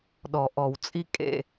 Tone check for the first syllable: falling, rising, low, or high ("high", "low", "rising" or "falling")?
low